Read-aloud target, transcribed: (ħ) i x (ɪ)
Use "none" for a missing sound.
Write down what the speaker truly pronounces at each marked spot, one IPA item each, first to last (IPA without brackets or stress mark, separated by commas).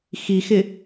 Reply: x, ɪ